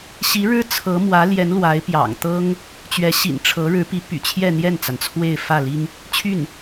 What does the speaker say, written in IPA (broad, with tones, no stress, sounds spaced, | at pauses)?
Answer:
ɕ i˧˥ ɻ ɻ̩˥ t͡sʰ ɤ˧˥ m w ä˧˥ l j ɛ˧˥ n l w a˧˥ ɪ̯ p j ɑ̰˨˩ ŋ t̪ ɤ˥ ŋ | t͡ɕ ɥ ɛ˧˥ ɕ ḭ˨˩ n ʈ͡ʂʰ ɤ˧˥ ɻ ɻ̩˧˥ p i˧˥ p y̰˨˩ t͡ɕʰ j ɛ˥˧ n̪ j ɛ˥˩ n t͡s a˩ n t͡sʰ w e˥˧ ɪ̯ f ä˥˩ l i˥ ŋ | t͡ɕʰ y˥˩ n